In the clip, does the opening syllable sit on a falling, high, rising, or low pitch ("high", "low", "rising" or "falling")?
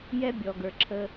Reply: high